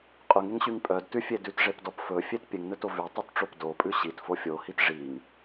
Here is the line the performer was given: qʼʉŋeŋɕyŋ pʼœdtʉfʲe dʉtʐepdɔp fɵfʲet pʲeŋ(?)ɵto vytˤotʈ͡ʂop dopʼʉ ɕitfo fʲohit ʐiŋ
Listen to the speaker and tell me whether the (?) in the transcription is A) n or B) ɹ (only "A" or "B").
A